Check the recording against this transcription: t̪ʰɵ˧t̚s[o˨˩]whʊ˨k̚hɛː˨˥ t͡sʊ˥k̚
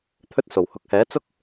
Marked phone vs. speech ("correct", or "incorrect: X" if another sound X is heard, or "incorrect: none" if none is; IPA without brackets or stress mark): correct